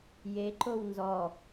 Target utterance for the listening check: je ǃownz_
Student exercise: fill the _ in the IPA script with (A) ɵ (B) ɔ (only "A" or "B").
B